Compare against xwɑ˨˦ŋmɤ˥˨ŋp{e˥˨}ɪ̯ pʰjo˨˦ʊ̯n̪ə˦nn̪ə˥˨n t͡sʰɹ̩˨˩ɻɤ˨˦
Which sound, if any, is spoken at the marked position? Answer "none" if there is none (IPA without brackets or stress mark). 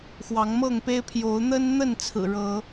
e˦